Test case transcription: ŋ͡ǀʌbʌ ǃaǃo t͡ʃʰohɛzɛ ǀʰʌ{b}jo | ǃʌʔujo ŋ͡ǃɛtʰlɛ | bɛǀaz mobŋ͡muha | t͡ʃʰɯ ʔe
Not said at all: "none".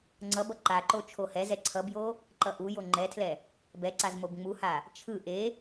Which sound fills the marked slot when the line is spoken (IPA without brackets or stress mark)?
b